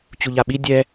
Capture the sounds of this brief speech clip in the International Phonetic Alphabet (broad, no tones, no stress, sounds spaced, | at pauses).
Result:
t͡ɕ u ʎ a ɓ i dʲ ɛ